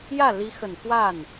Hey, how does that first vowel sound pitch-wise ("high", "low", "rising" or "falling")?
falling